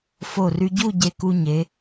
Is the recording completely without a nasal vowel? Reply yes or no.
yes